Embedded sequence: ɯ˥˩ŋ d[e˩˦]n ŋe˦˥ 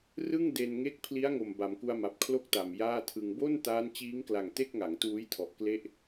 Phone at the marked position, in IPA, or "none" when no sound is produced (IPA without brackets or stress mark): e˧